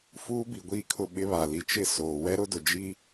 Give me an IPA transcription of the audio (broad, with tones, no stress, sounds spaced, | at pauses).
f uː˦ b i˨ ɡʷ i˦˨ kʰ ʊ˦˨ ɓ ɪ˦ β a˨ l i˨ t͡ʃ ɪ˦˨ s oː˨ w ɛ˦ ɾ ʊ˦ d ʊ˨ d͡ʒ i˦